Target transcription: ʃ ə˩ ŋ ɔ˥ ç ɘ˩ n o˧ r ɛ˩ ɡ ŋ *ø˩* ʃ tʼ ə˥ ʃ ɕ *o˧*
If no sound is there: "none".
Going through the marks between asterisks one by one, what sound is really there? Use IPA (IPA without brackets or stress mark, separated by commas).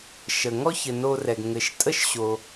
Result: ɘ˩, o˩